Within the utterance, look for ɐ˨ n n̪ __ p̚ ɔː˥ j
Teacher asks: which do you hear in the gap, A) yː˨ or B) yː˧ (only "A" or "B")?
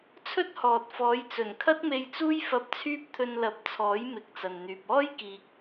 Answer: A